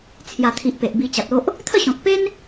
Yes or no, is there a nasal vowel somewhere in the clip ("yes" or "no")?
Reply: yes